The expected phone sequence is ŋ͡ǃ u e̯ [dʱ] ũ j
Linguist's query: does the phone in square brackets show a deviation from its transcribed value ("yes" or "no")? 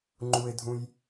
no